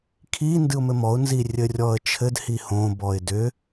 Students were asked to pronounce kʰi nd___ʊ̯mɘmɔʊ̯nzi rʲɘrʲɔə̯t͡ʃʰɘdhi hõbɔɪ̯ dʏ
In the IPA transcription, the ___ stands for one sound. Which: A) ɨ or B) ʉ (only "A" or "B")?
A